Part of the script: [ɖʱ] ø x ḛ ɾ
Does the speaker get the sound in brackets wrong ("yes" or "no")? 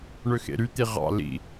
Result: yes